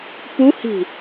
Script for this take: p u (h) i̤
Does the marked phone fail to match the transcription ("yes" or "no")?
no